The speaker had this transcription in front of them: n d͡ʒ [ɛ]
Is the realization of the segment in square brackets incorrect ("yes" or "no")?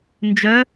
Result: yes